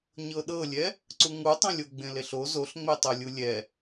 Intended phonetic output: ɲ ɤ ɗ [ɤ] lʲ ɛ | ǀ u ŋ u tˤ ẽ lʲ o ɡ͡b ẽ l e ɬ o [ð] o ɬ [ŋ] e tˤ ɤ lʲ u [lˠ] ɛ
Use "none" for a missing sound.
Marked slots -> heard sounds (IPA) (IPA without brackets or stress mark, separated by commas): ɤ, z, ŋ͡m, lʲ